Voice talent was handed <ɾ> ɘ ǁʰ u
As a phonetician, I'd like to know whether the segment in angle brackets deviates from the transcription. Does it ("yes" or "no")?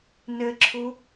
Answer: yes